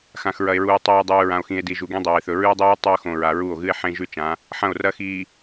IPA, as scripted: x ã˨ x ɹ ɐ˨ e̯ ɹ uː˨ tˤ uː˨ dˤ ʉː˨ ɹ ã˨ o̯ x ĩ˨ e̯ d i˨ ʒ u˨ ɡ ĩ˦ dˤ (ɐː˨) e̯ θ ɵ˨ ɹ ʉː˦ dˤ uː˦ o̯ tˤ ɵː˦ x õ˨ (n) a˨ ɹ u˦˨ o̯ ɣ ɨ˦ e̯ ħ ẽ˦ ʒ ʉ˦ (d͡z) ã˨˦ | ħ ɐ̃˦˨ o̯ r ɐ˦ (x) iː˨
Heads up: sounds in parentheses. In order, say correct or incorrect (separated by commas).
correct, incorrect, incorrect, correct